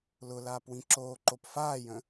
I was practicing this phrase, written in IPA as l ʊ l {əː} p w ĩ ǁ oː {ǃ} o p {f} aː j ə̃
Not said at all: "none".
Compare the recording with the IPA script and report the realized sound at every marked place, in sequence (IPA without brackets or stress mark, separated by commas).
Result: aː, ǃ, f